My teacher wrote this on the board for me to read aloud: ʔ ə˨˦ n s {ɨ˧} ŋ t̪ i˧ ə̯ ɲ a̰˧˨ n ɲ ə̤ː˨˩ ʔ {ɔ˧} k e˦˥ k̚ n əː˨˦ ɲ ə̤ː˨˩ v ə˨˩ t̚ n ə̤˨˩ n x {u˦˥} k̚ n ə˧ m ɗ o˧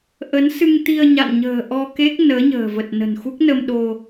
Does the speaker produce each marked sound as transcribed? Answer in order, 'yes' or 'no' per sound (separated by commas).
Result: yes, yes, yes